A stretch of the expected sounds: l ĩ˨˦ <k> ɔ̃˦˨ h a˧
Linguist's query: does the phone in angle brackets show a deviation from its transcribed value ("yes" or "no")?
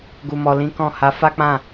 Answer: no